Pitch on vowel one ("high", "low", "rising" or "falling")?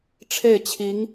falling